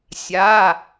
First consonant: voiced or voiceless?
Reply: voiceless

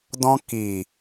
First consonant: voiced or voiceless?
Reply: voiced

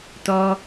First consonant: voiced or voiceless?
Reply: voiceless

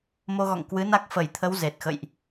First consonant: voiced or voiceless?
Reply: voiced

